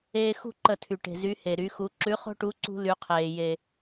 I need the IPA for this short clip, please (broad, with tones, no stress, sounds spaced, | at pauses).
eː˦ x ṳ˥˩ ǃ ə˧˩˧ tʰ y˩ ʈ e̤˩ z y˩˧ h e˩ ɾ y˩˧ x u˩˧ ǁ ʉ˨˥ χ o̤˦ ʈ u˨˥ ǀ ṳ˦ l y˩˧ qʰ eː˩ j e˩